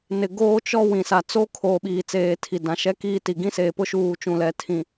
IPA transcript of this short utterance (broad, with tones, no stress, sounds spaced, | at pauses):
n ɪ˨ ɡ oː˦ t͡ʃ ɔ˦ w ĩ˨ s a˨ t͡s o˦ kʰ oː˨ ɓ iː˨ t͡s eː˨ tʰ i˨ d ã˨ ʃ ɛ˦ k iː˦ t i˨ ɡ ĩ˦ s eː˨ p ʊ˦ ʃ uː˦˨ t͡ʃ ũ˦˨ l ɛ˦ tʰ ĩ˨